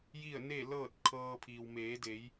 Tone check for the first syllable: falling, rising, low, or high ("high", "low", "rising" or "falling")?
falling